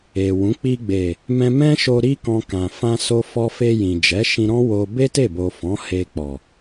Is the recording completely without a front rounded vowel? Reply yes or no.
yes